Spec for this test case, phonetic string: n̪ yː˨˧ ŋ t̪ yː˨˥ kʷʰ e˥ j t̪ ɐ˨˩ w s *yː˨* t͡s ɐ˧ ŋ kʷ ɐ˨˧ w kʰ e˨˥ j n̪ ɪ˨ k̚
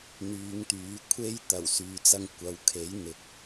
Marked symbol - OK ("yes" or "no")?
yes